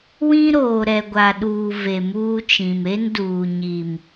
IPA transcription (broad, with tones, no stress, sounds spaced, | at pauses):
w ĩ˦ ɾ oː˨ ɾ ɛ˨ ɡʷ a˨ ɗ uː˨ v e˨ m uː˦ t͡ʃ ĩ˨ m e˦ n d uː˨ ɲ i˨ m